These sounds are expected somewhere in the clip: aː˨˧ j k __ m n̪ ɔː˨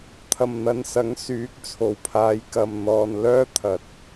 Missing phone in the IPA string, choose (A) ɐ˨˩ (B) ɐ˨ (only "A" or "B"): B